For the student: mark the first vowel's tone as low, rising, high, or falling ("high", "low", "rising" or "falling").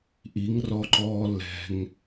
rising